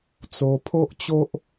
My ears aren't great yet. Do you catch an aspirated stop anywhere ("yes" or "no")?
yes